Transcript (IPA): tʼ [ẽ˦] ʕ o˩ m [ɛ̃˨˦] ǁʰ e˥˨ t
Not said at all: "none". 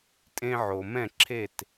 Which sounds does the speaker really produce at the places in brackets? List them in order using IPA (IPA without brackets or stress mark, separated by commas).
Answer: ẽ˦, ɛ̃˥˨